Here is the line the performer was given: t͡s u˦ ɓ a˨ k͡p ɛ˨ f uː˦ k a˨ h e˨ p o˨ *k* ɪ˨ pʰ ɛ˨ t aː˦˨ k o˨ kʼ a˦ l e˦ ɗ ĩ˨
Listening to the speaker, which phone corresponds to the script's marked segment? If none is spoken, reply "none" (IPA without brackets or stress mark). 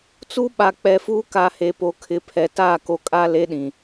kʰ